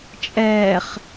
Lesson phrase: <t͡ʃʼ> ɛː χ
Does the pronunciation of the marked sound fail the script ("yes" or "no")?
no